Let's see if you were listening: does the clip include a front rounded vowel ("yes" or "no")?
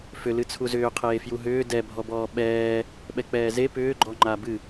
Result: yes